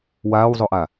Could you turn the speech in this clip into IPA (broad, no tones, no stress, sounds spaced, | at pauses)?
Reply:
w aː w zˤ o ʔ a